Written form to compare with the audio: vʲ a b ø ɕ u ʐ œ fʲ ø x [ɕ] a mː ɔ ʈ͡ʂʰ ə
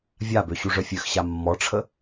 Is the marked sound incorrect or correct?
correct